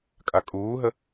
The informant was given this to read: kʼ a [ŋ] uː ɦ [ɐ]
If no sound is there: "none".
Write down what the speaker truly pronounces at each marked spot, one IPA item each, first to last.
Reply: kʼ, ə

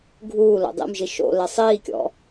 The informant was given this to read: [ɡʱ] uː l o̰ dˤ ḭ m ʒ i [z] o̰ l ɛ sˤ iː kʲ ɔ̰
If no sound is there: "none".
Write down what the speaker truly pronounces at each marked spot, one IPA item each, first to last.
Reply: ɡʱ, ʃ

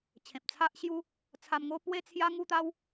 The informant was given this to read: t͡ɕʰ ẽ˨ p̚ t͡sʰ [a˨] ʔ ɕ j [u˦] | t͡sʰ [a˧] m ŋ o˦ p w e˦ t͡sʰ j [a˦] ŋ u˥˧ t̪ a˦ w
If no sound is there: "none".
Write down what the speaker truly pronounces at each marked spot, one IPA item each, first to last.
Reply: a˦, u˦, a˧, a˦

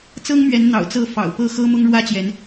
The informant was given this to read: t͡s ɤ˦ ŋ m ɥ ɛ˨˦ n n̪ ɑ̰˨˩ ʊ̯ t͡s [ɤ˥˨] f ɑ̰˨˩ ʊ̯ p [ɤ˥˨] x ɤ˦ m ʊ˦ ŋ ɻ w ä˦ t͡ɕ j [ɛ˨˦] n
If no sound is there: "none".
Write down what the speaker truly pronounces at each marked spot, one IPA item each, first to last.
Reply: ɤ˥˨, ɤ˥˨, ɛ˨˦

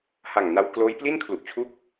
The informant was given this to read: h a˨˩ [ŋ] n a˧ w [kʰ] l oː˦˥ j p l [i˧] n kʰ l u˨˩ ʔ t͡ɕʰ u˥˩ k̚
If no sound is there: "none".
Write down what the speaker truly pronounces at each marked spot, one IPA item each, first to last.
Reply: ŋ, k, i˥˩

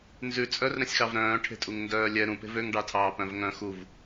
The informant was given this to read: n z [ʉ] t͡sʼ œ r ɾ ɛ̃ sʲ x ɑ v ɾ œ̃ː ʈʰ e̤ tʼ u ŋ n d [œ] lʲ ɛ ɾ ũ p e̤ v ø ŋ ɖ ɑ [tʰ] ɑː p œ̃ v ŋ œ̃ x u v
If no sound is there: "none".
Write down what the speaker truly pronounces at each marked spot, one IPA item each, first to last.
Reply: ʉ, œː, tʰ

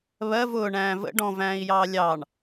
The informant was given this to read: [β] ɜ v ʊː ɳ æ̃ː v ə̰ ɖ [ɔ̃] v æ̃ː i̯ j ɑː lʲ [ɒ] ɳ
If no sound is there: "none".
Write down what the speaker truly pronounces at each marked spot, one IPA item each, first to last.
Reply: β, ɔ̃, ɑ

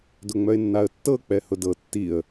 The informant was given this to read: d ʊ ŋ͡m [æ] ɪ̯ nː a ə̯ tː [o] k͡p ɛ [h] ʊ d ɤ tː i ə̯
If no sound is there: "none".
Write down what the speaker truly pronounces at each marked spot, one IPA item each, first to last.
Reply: œ, ɤ, h

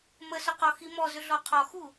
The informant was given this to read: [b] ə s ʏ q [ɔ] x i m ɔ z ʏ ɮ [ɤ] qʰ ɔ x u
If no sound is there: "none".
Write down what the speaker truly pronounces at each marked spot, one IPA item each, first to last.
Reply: m, ɔ, ɔ

